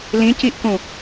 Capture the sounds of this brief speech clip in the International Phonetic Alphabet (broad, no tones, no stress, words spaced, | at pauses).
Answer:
lĩciʔkũ